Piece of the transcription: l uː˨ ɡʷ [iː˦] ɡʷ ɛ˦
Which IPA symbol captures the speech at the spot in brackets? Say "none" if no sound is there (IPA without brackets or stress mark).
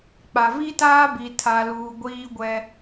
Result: iː˦